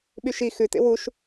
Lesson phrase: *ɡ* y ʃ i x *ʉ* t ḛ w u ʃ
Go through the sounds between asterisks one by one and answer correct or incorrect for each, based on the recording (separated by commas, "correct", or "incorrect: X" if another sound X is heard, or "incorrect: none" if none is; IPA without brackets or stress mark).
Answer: incorrect: ɓ, correct